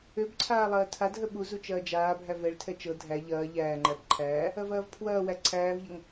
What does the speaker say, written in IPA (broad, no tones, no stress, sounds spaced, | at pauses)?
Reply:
ø b ǀʰ aː lˠ ɐː tʰ a d ɦ ə ɓ u z u t͡ʃ ɐː d͡ʒ aː bʱ æ v ɛ ɭ tʰ ɛ t͡ʃ ɤ dʱ æ ʎ ɐː ʎ æː ŋ͡ǃ æ b ǃʰ æː | ɐ v ɐː v pʰ w ɐː w æ ǀʰ æː v ʎ ɐ ŋ